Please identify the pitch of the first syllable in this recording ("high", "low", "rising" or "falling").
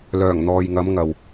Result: low